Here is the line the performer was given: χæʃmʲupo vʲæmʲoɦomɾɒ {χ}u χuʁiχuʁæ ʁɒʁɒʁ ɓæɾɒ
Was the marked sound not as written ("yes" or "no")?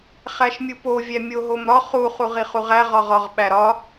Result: no